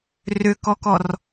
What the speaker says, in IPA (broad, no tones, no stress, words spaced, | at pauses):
rʏkɔkɔr